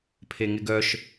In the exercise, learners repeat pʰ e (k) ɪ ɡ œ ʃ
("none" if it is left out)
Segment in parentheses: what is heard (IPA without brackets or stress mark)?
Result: ŋ